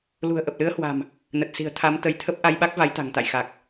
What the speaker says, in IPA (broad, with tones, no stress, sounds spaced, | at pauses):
l ṳ˨˩ ə̯ ʔ ə˨˩ p̚ l ɨ˨˦ ə̯ h w a̤˨˩ m | n ə˨˩ t̚ s i̤˨˩ ə̯ t̪ʰ a˨˦ m t̪ ə˨˦ j t̪ʰ ə˦˥ p̚ ʔ a˧ j ɓ a˦˥ k̚ v a˨˦ j t̪ a̤˨˩ ŋ t̪ a̰˧˨ j x a˨˩ k̚